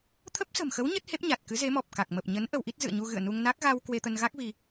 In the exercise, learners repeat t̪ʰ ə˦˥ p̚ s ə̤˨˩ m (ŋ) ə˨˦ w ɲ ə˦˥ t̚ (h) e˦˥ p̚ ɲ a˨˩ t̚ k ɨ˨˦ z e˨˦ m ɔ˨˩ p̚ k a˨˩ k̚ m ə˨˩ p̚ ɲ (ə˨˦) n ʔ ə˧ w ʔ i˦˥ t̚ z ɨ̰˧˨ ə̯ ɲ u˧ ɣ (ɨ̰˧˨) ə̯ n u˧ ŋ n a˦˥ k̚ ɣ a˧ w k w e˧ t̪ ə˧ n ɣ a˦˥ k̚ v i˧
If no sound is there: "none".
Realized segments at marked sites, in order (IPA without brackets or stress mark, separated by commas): x, h, ə˨˦, ɨ̰˧˨